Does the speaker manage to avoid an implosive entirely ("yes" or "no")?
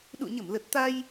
no